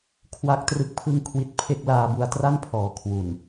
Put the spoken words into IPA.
kʰ w a˥˩ k̚ t r ɯ˥˩ k̚ pʰ ɯ˥˩ ŋ kʰ w i˦˥ t̚ pʰ e˥˩ k̚ l aː˧ b u˧ a̯ t r a˥˩ n pʰ ɔː˨˩ kʰ w u˨˩ n

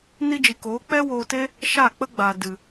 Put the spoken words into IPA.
n i˧ d͡ʒ i˨ k oː˨˦ k͡p ɛ˦ w oː˧ t e˦ | ʃ a˦˨ k͡p ə˦ ɡ͡b a˨ d ɨ˨

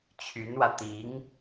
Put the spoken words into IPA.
t͡ɕʰ y˧˥ n w ä˧ t̪ i˧˥ ŋ

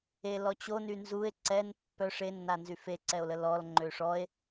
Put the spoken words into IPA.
e l ɔ t͡ɕ o n y n z u e̯ ǀ ɛ n pː œ ʂ e nː a n z y f e ǀ ɛ o̯ l ə l ɔ l ŋ͡ǃ ø ʂ ɔ e̯

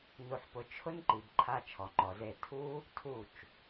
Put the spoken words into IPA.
n u˧ ħ p ʊ˧ t͡ʃʰ ʊ˦ n ǃ i˨ b ǃʰ a˧ t͡ʃʰ ɔ˨ ŋ͡ǃ ɔ˨ z e˦˨ tʰ u˦ | tʰ u˦˨ t͡ʃ

